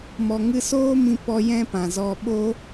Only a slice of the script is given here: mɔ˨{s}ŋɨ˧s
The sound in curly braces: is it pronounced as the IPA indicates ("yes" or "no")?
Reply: no